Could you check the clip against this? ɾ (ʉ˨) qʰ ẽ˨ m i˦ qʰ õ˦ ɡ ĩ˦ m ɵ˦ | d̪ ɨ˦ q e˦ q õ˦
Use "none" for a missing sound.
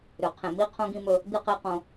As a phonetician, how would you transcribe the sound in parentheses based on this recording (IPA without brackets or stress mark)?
ʉ˨